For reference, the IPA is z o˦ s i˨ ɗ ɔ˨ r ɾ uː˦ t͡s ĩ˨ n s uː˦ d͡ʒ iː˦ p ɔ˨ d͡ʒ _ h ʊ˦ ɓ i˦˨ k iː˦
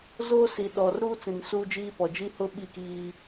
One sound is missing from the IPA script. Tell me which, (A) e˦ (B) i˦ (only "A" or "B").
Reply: B